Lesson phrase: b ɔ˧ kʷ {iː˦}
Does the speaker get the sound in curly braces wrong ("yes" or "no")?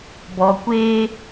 yes